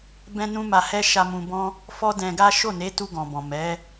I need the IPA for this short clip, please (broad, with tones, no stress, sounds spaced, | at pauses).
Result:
b ɛ̃˦ n ũ˦ m a˧ h ɛ˦ ʃ a˧ m ũ˧ b ɔ̃˦ | f ɔ˦ d ɛ̃˧ ɡ a˦ ʃ o˦˨ n e˨˦ t u˧ ɡ ɔ̃˨ b ɔ̃˨ m ɛ˨˦